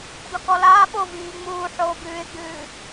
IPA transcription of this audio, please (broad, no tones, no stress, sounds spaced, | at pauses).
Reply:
d ɔ k ɔ l aː ɓ o v iː ŋ͡m uː ħ oː b ʉː ɪ̯ ɡ͡b ʉː